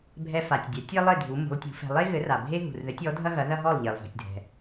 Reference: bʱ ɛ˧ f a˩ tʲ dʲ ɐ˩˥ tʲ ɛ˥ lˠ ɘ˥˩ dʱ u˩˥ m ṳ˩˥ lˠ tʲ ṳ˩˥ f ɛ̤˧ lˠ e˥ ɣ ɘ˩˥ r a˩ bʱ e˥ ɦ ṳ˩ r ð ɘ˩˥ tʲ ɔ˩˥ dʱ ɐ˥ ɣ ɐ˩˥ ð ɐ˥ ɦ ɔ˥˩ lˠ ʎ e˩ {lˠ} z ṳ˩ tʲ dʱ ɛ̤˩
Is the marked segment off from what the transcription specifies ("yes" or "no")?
no